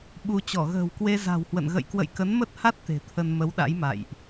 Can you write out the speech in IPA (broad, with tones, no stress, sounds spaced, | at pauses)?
ɓ u˧ t͡ɕ ɔ˧˩ ɣ ə̤ː˨˩ w k w e˧ z a̤˨˩ w h w ə̰˧˨ n ɣ ə̰˧˨ j k w ə̰˧˨ j k ə˨˦ n m ə˦˥ t̚ h a˦˥ t̚ t̪ e̤˨˩ t̪ʰ ə˧ n m ə˨˦ w ɗ a̰˧˥ j m a̰˧˨ j ʔ